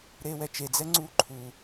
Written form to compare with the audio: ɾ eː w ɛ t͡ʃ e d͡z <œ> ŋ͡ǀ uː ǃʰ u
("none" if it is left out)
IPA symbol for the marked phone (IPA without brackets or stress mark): ɛ